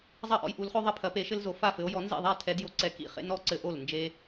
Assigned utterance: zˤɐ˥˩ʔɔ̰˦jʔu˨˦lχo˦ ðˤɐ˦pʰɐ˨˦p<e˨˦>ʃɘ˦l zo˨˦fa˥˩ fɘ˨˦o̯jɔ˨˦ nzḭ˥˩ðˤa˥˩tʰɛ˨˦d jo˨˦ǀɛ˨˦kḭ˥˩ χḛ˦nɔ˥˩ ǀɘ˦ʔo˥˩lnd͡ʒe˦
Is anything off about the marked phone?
no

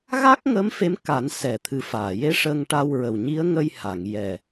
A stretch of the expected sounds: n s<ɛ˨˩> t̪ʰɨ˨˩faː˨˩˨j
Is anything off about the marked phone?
no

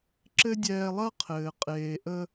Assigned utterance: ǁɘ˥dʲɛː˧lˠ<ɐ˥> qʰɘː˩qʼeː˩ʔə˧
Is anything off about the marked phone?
no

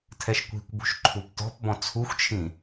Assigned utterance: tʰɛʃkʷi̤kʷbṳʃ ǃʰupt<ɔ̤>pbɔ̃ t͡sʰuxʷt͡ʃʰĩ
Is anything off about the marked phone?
no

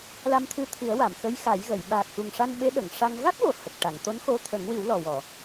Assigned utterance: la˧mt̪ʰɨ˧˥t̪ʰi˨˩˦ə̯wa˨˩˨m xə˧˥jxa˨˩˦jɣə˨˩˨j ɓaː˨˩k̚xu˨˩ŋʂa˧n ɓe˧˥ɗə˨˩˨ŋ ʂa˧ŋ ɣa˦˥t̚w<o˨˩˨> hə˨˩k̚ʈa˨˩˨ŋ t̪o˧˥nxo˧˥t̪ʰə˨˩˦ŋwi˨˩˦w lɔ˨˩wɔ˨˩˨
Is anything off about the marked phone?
no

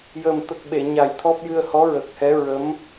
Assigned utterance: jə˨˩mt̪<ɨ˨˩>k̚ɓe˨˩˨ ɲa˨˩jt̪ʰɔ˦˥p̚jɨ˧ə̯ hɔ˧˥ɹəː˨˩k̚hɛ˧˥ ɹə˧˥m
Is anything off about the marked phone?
yes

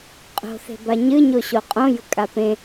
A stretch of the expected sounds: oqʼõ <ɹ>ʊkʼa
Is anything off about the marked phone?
yes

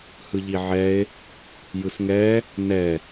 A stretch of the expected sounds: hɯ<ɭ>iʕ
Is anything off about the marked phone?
yes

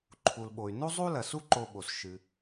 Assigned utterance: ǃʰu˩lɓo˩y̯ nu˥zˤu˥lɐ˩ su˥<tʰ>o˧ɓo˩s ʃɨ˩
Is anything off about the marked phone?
yes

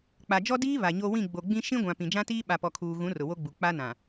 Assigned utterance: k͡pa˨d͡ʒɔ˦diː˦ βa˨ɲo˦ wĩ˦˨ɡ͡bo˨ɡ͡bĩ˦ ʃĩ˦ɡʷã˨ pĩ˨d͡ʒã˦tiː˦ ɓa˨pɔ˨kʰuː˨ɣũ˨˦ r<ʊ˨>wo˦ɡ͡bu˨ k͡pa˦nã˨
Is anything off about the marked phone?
no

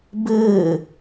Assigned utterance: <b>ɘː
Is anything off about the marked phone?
no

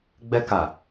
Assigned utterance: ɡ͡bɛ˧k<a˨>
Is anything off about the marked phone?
no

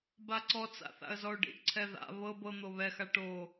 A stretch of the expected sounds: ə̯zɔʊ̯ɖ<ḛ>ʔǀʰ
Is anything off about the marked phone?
yes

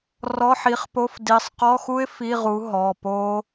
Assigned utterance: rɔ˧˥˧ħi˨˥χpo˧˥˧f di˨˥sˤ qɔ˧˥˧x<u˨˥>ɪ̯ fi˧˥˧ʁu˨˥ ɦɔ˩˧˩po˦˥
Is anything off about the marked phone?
yes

